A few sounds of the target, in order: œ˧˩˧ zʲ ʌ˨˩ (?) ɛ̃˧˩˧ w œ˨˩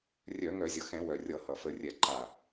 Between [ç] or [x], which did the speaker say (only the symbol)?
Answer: x